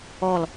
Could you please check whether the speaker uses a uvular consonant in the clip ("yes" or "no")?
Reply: no